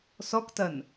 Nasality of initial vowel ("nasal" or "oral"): oral